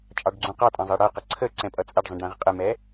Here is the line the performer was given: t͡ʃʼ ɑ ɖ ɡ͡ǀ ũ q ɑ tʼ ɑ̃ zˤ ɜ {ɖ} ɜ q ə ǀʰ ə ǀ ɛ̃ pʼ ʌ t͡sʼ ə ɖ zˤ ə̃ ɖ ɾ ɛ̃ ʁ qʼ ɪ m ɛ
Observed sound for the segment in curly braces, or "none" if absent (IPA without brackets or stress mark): ɽ